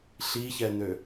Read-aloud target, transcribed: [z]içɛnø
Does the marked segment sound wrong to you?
yes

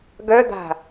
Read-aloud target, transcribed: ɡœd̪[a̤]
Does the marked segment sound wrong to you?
no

